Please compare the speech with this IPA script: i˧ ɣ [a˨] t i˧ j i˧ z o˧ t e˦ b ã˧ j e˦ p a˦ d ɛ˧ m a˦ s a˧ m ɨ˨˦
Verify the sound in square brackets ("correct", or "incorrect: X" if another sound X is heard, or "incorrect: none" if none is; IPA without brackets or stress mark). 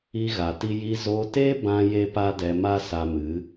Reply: correct